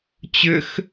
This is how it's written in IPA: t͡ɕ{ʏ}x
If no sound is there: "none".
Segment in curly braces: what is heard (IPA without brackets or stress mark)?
ʏ